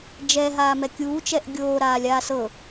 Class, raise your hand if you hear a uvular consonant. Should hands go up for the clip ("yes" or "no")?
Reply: no